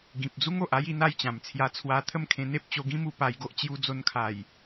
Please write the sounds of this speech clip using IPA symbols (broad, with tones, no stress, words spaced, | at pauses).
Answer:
ɡĩ˨p̚d͡zu˦ŋo˨ʔa˦j i˧n̪a˥˧jt͡ɕã˨˩mt͡sʰja˧ t͡sʰwa˧t̪ʰə˥˧mkʰẽ˧ n̪e˦p̚t͡ɕo˧ɡĩ˦mu˧ pa˧jɡo˦ʔ t͡ɕju˧d͡zo˧nkʰa˨˩j